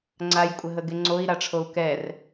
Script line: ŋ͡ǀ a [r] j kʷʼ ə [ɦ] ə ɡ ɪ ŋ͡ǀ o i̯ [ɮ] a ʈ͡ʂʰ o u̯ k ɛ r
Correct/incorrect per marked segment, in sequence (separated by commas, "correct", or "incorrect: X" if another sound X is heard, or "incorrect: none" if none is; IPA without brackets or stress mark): incorrect: none, correct, incorrect: ɾ